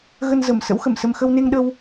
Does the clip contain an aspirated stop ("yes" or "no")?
no